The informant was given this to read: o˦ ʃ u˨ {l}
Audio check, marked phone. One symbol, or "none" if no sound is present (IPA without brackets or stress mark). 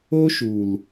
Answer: l